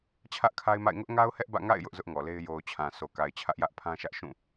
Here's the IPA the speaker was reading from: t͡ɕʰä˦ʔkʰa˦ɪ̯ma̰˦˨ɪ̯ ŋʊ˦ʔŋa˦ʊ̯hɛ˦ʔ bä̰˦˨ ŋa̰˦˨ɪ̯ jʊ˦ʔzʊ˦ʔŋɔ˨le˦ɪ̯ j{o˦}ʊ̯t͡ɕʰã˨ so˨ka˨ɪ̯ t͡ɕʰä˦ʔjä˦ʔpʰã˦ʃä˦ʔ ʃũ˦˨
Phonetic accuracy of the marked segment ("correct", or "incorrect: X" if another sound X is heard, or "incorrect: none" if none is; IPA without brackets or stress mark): incorrect: o˨